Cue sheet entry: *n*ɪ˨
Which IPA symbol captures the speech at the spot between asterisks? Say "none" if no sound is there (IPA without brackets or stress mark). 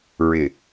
ɹ